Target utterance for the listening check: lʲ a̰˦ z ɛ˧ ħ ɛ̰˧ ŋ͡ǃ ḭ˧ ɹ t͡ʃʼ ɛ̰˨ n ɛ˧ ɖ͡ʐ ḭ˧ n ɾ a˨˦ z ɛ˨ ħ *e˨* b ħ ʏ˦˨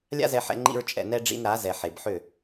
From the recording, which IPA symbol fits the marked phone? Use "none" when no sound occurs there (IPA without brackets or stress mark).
e˨